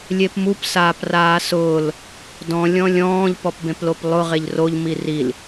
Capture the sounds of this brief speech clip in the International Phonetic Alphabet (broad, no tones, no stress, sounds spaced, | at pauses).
lʲ e p m u p s aː p r aː s ʊː l | d ɔ̃ lʲ ɔ̃ lʲ ɔ̃ː ʎ p ɔ p b ẽ p l o p lˠ ʊ ʁ e ʎ r o ʎ m i r i l